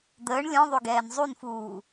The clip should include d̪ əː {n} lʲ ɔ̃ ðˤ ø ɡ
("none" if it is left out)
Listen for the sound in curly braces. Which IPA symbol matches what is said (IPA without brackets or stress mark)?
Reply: ɳ